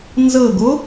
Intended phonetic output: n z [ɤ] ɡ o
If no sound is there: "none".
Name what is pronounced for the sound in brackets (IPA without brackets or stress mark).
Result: ɤ